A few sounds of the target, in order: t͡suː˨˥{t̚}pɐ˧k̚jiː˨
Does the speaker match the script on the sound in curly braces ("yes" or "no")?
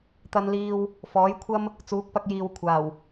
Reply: no